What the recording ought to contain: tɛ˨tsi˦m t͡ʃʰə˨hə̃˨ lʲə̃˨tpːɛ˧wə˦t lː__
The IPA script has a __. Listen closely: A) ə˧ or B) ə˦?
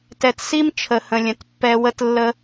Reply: B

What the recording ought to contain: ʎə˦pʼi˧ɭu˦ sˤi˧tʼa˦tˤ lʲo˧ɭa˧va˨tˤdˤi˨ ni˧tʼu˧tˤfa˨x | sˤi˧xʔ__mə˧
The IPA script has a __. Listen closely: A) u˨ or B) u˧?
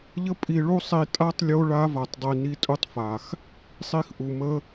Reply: A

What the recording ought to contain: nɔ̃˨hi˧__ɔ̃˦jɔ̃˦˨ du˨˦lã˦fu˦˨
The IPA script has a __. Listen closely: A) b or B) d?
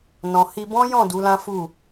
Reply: A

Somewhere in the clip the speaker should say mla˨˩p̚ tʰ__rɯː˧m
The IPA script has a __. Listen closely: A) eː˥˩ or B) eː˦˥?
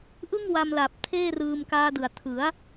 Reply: A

